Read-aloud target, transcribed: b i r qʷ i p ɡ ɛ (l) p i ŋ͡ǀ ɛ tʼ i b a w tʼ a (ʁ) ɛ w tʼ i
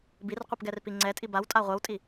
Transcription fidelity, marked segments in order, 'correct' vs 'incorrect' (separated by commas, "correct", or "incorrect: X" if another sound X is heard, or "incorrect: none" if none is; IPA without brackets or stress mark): incorrect: r, incorrect: ʁʷ